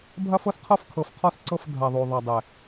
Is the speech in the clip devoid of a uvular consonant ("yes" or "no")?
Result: no